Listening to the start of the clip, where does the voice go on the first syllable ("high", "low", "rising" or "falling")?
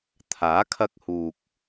rising